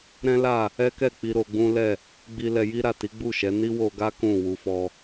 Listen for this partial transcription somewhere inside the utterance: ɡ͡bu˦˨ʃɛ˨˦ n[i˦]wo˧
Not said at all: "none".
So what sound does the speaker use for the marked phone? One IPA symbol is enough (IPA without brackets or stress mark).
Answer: i˦